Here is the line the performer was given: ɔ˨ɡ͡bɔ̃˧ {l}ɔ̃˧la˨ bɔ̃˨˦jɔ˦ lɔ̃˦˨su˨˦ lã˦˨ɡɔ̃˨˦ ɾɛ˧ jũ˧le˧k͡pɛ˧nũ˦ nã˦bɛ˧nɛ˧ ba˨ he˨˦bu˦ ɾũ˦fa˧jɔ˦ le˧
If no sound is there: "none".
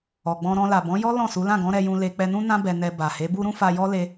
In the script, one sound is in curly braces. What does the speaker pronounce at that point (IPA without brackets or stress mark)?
ɾ